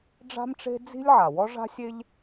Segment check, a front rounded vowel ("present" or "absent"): absent